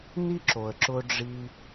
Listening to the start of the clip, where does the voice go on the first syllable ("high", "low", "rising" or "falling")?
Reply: high